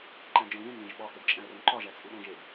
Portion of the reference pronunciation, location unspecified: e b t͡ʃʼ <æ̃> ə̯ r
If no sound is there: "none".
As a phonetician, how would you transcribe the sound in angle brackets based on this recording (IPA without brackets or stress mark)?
æ̃